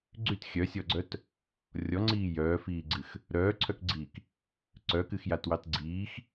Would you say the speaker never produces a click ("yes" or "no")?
no